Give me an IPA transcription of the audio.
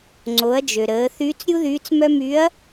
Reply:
ŋ͡ǀ o˩˧ ɐ̯ d͡ʒ ø˩ ɾ əː˩˧ θ yː˧˥ t͡s ɾʲ u˥ ð yː˧˥ t͡s m œ˥ m y˧˥ ɐ̯

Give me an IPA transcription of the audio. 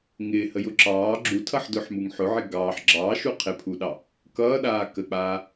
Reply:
ŋ ɪː h ə j ʊ ǁ ɑː ɡ͡ǁ u tʰ ʌ ħ d ʊː ħ m u ŋ ħ ʊ ʕ ɪ ɡ ɑː ħ ɡ͡ǁ ɑː ʃ u qʰ ɪ pʰ u ɗ ɑ | k ʌː ɗ aː k ə k͡p aː

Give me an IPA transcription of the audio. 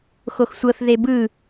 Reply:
x o x sʷ ɤ θ ð e b ɯ

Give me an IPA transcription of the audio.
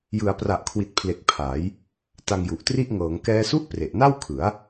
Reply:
j ɯ˩˦ a̯ p r a˨˩ ʔ kʰ w i˨˩ t̚ pʰ l e˨˩ k̚ pʰ a˩˦ j | t a˧ ŋ j u˨˩ ʔ t r i˥˩ ʔ ŋ ɤː˩˦ ŋ k ɛː˦˥ s u˥˩ ʔ p r e˨˩ ʔ n a˥˩ w kʰ ɯ˩˦ a̯

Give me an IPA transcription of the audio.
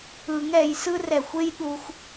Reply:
ɯ˨˩˦ ŋ ɛ˨˩˦ j s ɯ˥ r ɛ˨˩ xʷ e˥ j ɗ u˧ xʷ

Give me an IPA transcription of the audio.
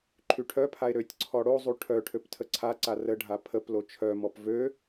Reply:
ǃʰ y ʈʰ œ pʰ a e̯ ɾ ø tʲ ǀʰ ɔ ɽ o zˤ u ʈʰ œ ʈʰ ø p tʰ ə ǀʰ a ǀ a r ə ɖʱ a pʰ ə p l o t͡ʃʰ œ m ɔ p v ø

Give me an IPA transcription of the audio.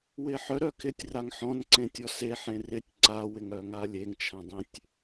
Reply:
w ɪ ħ œ ɾ œ kʰ ɪ tʲ r a ŋ ħ ɔ̃ n ǀ ẽ tʲ ɔ s e ħ ẽ r ɪ tʲ ǀ a w ɪ ŋ œ ŋ a lʲ e ŋ t͡ʃʰ ã dˤ ẽ tʲ

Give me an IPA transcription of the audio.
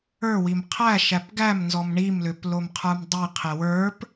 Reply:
ə˞ w i m qʰ æ ʃ æ p ɡ æ m n z ɔ m ɳ i m l ʏ p l o m qʰ ə˞ m dˤ i qʰ e w ə˞ p

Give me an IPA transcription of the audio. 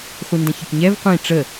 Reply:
χʷ i n d ə̃ ç ə k ɲ ɛ v qʷ ĩ ʈ͡ʂ ə

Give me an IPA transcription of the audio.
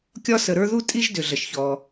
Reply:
kʲ ɒ˧ s ə˩ ɾ ə˞˧ ð u˥ tʼ i˥ ʒ d ʏ˩ ɮ ə˩ ʃ ç ɔ˩

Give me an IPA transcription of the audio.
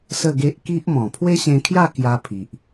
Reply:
s ə˥˧ ɡ e˦ ʔ k i˦ ʔ m ɔ̃˨˩ pʰ w e˦ ɕ ẽ˧ kʰ j a˥˧ k j a˧ pʰ i˨ ʔ

